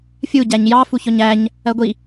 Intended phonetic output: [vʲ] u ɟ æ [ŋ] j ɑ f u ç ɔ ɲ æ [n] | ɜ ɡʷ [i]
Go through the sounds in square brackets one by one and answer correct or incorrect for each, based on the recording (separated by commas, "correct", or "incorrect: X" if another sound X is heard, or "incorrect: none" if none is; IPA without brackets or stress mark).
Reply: incorrect: fʲ, incorrect: ɲ, incorrect: ɲ, correct